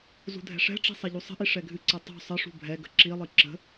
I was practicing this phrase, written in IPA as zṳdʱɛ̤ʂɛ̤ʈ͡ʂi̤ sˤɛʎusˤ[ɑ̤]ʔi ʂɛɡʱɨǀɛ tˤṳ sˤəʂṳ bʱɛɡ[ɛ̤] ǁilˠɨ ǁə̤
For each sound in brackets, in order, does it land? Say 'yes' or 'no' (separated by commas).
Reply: no, no